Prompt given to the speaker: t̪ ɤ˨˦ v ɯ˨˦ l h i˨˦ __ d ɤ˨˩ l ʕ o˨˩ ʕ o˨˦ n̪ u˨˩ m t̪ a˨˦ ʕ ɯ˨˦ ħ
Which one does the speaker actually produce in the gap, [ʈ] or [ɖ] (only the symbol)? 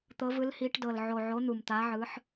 ʈ